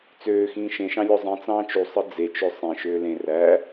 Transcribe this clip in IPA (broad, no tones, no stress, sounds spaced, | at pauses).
t͡s øː x ĩː ʃ ẽ ʃ ɑ̃ lʲ o zˤ ĩ t͡s ɑ̃ː t͡ʃ u sˤ ɯ d͡z e t͡ʃ ø sˤ ẽ ʃ øː l ẽ r æ